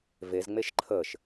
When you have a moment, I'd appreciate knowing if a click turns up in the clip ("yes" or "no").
yes